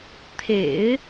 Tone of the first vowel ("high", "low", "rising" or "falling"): low